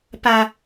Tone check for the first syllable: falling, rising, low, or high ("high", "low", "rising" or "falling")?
low